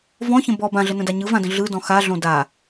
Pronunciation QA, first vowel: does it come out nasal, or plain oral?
nasal